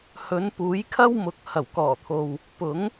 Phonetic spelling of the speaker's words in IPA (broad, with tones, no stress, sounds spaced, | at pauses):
h ɵ˨˧ n p uː˨˥ j kʰ ɐ˥ w m ʊ˨˥ k̚ h ɐ˨˩ w k ɔː˨˩ t̪ʰ o˨ w | p ʊ˨˥ ŋ